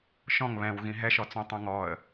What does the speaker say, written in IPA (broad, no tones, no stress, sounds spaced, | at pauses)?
ʃ ɔ̃ ŋ β ɛ̃ w ɣ ĩ ɦ ɛ ʃ ɔ t͡s õ tˤ õ ŋ ɔ ə̯